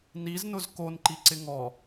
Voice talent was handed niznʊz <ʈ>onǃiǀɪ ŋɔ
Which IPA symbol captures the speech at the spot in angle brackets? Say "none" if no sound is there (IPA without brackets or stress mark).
k